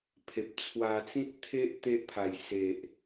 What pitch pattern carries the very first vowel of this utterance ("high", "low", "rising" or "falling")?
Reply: low